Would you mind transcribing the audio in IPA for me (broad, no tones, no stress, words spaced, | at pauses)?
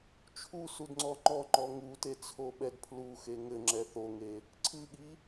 t͡ʃʰu sudŋ͡ǀɔŋ͡ǃɔŋ͡ǃɔ ŋute t͡sʰoɓɛdpʰluxe ŋɘŋ͡ǁɛ θoŋe | ǀʰɨɠi